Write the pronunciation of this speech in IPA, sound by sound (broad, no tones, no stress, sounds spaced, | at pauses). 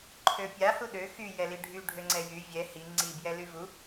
ǃʰ ø pʲ a h u ɗ ø x y j ɛ l i ɖʱ y ɖʱ ø ŋ͡ǀ ɛ j y vʲ ɛ h i ŋ͡ǀ i b j ɛ l y v u